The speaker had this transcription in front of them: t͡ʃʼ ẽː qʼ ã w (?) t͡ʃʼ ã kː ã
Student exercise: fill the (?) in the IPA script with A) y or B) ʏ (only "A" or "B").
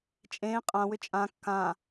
B